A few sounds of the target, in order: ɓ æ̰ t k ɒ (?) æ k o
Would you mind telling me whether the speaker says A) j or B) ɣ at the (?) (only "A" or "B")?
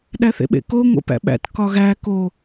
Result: B